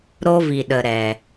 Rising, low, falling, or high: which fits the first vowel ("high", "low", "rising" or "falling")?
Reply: high